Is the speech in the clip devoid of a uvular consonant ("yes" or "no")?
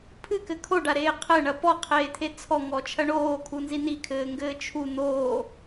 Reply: no